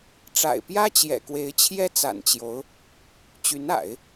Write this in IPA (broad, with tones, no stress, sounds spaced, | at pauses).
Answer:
ʈ͡ʂ a̰˨˩ ɪ̯ p j ä˥ t͡ɕ j ɛ̰˨˩ k w e˧˥ ɪ̯ t͡ɕʰ j ɛ˥ t͡s a̰˨˩ n t͡ɕ j o˧˥ ʊ̯ | t͡ɕ y˧˥ n a̰˨˩˦ ɪ̯